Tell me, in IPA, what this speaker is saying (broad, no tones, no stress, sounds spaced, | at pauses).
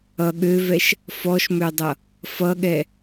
ʌ ɠ ø v ɛ ʃ | f ɔ ʃ m ø dˤ ʌ | f ʌ ɠ ɛ